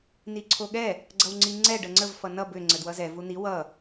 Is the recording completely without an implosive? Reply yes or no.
no